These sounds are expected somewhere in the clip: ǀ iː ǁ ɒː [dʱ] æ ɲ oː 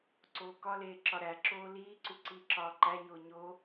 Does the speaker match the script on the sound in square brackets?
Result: no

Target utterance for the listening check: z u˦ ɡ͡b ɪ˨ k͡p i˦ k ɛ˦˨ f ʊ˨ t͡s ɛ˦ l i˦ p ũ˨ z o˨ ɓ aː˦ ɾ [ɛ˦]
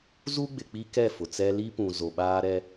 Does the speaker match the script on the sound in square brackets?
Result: yes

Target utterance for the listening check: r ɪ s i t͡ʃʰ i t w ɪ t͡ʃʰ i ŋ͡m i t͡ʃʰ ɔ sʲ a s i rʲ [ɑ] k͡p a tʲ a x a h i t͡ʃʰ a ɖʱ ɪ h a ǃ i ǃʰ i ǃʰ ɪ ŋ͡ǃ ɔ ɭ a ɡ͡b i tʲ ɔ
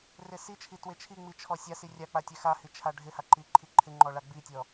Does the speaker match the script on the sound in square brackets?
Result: no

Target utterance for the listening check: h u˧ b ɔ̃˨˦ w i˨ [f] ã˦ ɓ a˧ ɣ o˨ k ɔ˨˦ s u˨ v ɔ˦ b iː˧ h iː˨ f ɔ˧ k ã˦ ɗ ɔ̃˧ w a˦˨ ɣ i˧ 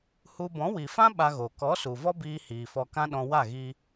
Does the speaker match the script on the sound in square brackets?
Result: yes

